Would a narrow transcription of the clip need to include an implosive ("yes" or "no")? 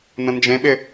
yes